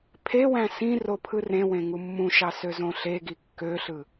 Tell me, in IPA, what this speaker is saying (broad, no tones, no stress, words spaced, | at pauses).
pʰewæ̃ sĩ ropʰɯrẽwẽ ŋumːũʃɑ søzõɬeɡi kːøɬɯ